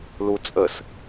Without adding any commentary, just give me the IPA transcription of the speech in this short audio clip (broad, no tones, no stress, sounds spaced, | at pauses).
l u t͡sʼ ə s